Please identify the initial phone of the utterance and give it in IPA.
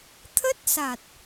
t̪ʰ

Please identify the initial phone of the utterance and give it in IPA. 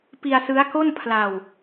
p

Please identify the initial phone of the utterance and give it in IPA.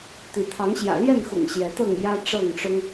t̪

